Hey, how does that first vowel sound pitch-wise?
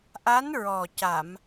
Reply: rising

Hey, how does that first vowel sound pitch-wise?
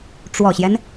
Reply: low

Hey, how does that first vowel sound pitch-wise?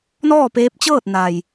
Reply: falling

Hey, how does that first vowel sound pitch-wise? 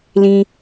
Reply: high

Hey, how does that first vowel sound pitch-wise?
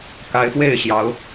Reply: rising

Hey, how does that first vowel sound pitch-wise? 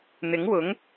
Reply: rising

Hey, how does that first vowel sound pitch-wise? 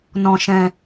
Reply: low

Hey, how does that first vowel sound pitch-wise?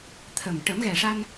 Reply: low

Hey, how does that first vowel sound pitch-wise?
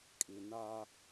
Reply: low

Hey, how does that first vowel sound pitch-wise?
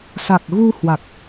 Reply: low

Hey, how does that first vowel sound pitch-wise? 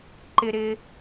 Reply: high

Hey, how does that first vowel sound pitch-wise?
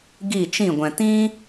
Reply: falling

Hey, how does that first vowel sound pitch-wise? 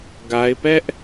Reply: high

